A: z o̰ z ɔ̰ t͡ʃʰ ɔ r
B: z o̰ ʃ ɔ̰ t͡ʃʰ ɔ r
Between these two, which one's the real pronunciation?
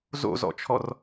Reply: A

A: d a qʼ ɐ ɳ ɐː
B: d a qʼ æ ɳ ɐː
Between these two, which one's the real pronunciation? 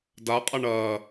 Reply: A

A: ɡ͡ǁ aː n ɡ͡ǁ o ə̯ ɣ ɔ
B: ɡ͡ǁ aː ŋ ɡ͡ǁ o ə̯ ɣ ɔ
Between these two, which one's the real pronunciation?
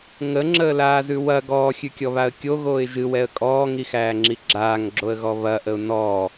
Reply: B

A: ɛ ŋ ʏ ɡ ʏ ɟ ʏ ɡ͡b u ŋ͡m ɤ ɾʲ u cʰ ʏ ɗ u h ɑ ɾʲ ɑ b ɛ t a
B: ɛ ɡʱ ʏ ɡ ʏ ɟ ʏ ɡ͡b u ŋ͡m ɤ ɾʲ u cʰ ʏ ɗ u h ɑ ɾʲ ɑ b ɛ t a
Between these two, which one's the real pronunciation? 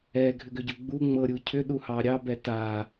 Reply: B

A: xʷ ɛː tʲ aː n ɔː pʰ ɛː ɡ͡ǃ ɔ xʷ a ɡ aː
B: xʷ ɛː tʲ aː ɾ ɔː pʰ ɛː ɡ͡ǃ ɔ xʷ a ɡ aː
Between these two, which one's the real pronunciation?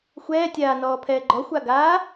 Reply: A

